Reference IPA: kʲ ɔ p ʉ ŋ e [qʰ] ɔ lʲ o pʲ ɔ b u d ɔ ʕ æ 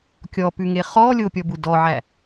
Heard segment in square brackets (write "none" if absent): χ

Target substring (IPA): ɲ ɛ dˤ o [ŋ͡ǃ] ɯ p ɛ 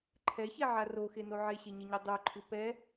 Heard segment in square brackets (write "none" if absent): ǃʰ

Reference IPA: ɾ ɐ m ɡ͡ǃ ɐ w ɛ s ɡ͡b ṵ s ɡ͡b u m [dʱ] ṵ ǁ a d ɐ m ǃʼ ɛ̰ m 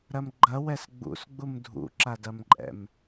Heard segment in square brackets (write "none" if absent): dʱ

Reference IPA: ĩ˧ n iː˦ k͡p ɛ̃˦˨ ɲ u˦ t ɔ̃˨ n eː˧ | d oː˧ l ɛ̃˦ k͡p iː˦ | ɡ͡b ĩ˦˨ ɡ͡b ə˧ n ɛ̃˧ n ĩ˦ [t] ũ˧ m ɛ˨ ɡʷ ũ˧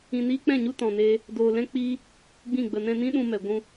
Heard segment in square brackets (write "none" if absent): ɗ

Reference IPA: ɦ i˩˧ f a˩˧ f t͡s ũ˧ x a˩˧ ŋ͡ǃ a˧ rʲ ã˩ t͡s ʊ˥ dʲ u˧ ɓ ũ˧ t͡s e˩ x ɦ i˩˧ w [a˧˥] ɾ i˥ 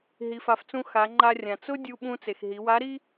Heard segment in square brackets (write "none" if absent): a˧˥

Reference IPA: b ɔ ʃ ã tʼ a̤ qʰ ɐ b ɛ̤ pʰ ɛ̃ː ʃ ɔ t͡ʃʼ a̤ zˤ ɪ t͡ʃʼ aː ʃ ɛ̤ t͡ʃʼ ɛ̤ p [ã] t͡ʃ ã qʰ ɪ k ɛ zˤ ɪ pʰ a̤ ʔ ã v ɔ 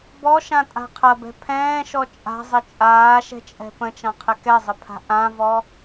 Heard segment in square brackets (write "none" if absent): ə̃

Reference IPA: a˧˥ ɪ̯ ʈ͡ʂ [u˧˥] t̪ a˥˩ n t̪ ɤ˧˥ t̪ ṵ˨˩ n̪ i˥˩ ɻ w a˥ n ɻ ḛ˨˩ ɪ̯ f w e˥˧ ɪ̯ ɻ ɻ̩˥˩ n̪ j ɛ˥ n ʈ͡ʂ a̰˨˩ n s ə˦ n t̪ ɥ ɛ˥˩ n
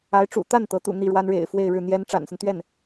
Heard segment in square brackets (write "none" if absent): ṵ˨˩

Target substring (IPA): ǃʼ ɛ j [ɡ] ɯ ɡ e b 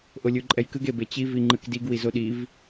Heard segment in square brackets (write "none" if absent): k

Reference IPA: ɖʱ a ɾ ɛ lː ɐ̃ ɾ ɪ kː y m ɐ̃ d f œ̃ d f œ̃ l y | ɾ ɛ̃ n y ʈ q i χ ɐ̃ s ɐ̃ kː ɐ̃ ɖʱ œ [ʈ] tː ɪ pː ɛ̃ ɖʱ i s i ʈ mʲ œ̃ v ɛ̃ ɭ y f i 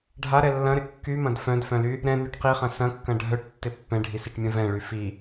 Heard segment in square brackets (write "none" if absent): ʈ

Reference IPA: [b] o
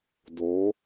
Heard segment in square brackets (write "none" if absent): d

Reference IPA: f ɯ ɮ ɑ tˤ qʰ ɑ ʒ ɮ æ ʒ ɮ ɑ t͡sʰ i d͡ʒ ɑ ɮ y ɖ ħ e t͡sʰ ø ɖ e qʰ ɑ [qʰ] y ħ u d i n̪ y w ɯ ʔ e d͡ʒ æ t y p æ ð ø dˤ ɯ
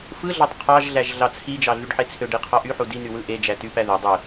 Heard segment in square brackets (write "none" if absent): ʔ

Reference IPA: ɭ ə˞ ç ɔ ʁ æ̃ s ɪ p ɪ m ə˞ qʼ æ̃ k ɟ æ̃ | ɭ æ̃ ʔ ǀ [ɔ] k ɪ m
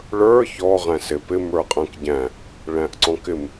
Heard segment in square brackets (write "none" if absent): ɔ̃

